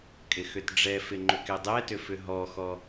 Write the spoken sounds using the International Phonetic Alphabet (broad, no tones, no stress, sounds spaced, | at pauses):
kʼ ɪ x ʏ t ɖ͡ʐ ɛ f ɪ ŋ͡ǃ ʏ k ɛ dˤ ɛ t ʏ f ʏ ɦ ɔ x ɔ